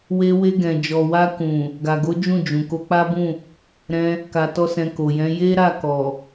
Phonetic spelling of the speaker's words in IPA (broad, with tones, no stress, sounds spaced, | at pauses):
w e˧ w e˧ ɡ ɛ̃˨ d͡ʒ ɔ˨ w a˧ k ũ˨ | ɡ a˨ ɡ o˨˦ d͡ʒ ũ˦˨ d͡ʒ ũ˨ k o˧ k͡p a˦ b ũ˦˨ | ɾ ɛ̃˧ | k a˧ t ɔ˦ s ɛ̃˧ k o˨ j ɛ̃˨˦ j e˦ ɾ a˦˨ k ɔ˨